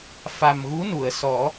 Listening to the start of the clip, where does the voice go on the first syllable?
low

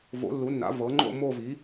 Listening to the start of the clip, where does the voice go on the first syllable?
rising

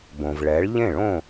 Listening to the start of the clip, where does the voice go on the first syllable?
low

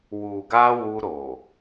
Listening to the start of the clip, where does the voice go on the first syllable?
low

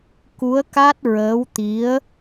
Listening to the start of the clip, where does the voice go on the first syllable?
rising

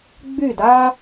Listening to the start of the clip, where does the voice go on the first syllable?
falling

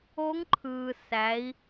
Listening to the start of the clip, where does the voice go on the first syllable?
rising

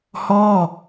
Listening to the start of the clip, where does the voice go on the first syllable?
falling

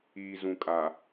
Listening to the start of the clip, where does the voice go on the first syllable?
low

